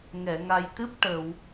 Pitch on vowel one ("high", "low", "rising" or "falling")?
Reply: low